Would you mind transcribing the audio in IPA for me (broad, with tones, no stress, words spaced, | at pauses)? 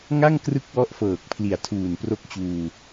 ŋa˥˩ŋ krɯ˥˩k̚wɔ˦˥ʔfɤː˨˩k̚ pʰli˨˩a̯tʰuː˨˩npro˦˥k̚t͡ɕuː˧